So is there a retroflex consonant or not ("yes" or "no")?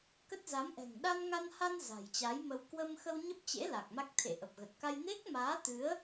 no